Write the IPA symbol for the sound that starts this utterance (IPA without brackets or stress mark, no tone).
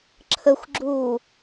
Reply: ǁʰ